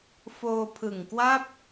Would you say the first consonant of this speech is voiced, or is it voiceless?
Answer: voiceless